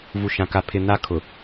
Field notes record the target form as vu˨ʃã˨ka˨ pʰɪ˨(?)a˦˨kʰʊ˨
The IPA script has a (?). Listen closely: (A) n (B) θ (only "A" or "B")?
A